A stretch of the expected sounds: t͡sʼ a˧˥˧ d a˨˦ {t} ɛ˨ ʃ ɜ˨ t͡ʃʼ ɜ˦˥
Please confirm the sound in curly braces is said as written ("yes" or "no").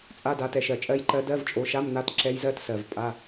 yes